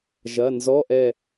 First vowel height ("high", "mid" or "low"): low